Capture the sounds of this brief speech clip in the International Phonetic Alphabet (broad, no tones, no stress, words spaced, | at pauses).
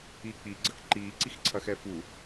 iːk͡pi ɡ͡ǀɐkǃiː ǀixǀʰɐxɛfu